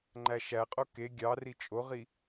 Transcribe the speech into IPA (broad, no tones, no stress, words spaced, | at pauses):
ŋ͡ǃæʃæqʼo ke ɡʲɑri t͡ʃʼoʁi